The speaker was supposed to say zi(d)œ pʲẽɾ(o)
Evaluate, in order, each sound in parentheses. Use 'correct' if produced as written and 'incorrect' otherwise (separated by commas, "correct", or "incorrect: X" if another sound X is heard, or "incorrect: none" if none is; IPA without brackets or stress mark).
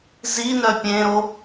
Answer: incorrect: n, correct